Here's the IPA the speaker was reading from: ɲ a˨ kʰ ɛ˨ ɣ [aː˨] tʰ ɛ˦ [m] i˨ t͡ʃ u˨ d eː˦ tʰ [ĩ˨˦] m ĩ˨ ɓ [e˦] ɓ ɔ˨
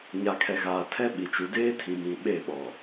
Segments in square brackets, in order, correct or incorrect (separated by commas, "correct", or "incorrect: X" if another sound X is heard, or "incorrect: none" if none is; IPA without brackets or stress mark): correct, incorrect: ɓ, incorrect: ĩ˨, incorrect: e˦˨